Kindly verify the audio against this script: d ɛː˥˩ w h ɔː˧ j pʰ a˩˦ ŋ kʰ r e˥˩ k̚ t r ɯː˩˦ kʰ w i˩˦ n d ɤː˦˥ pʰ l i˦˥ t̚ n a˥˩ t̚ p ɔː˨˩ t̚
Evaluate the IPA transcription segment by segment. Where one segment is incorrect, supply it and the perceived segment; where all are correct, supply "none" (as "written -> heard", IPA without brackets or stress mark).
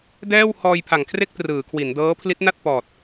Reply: none